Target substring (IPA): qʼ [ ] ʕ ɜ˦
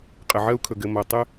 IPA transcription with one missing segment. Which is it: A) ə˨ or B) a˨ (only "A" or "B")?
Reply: A